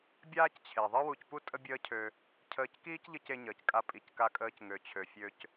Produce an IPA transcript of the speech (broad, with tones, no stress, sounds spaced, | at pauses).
bʲ aː˥ c t͡ɕʰ e˩ ðˤ ɨ˥ w u˧ c p u˥ tʼ ə˥ bʲ əː˥ cʰ ø˧ | cʰ əː˧ c k iː˥ c ʎ ɨ˧ c e˧ ɲ əː˩ c kʼ a˧ pʼ i˩ c k a˧ kʼ əː˧ c ŋ ø˩ t͡ɕʰ ø˩ fʲ ø˧ c